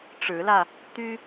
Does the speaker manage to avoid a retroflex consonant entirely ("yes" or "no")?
no